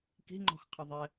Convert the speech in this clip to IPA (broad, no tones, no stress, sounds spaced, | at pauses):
k i̤ ŋ͡ǃ ɔ̤ x qʰ ɘ ðˤ ɛ